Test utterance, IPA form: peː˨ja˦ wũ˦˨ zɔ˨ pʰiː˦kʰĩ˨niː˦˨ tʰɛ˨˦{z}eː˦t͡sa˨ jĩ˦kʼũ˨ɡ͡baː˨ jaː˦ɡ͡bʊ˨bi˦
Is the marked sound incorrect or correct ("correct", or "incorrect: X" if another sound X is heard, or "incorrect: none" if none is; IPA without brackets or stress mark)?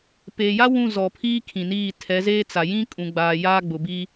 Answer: correct